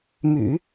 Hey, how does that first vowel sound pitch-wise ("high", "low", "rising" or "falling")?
low